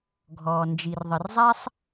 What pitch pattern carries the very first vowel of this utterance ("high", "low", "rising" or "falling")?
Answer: low